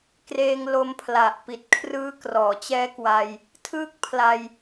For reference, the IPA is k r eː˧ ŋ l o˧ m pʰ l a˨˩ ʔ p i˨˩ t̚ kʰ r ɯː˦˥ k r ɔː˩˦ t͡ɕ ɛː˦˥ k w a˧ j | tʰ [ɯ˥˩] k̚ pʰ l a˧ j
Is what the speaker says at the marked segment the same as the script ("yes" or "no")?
no